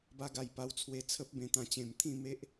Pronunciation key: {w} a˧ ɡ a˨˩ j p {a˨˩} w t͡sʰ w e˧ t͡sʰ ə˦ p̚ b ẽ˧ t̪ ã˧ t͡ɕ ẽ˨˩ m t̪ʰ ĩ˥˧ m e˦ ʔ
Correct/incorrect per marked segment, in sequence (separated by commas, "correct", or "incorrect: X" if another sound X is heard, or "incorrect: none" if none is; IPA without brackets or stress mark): incorrect: b, incorrect: a˧